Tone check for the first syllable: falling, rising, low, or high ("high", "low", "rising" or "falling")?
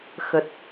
low